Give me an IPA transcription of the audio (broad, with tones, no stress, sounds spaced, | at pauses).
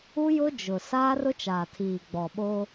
u˦ j ʊ˦ d͡ʒ ʊ˨ s aː˦ r ʊ˦ t͡ʃ aː˨ tʰ iː˨ ɡ͡b ɔ˨ ɓ o˦